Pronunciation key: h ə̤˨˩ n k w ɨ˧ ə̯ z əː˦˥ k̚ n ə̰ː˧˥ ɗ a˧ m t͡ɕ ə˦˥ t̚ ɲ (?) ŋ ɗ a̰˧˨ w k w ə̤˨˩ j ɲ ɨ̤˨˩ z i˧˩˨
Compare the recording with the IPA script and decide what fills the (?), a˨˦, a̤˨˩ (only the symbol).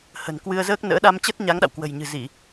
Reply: a˨˦